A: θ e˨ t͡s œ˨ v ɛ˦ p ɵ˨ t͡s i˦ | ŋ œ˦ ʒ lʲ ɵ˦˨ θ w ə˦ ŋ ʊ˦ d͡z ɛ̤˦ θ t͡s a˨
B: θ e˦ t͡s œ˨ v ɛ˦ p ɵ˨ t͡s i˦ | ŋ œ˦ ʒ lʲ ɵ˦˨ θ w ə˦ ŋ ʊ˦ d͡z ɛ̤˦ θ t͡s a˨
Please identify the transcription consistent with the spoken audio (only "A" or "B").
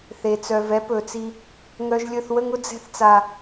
A